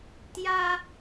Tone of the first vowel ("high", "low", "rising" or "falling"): high